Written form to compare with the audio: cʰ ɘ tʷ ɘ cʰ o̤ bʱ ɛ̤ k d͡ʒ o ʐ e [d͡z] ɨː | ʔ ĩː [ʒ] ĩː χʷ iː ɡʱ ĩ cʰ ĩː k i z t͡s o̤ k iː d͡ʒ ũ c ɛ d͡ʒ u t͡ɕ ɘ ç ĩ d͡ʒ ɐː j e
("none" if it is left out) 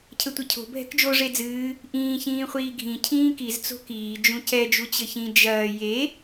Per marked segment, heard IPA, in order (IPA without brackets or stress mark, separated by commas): d͡z, ç